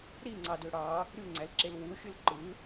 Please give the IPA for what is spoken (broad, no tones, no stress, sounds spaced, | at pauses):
ɾ i ŋ͡ǀ ɑ d ø ɽ ɑ | ɾʲ u ŋ͡ǀ æ l ǁ e l w u xʲ ɯ l ǃ ɯ